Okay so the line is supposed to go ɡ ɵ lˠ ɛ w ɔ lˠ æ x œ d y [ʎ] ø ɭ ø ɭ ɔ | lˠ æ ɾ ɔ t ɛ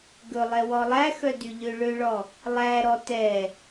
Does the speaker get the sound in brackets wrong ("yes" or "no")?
no